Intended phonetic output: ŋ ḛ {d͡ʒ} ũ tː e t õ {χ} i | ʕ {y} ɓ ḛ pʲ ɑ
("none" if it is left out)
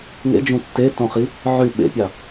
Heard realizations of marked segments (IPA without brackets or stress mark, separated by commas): d͡ʒ, χ, y